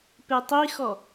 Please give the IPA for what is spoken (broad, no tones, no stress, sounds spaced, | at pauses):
p e tˤ i x ɔ